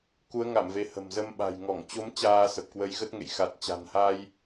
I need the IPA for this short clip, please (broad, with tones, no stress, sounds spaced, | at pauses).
k u˨˦ ə̯ ŋ a˧˩ m v e˨˦ h ə̤˨˩ m z ə˧ m ɓ a̤˨˩ j ŋ ɔ˧˩ ŋ t͡ɕ o˨˦ m t͡ɕ aː˧ s ə˨˩ p̚ k w ə˨˦ j ɣ ə˦˥ t̚ ŋ ḛ˧˨ j x a˨˩ t̚ t͡ɕ a̤˨˩ n h a˧ j